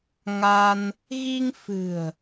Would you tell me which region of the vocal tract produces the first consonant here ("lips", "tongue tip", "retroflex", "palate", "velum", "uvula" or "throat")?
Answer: velum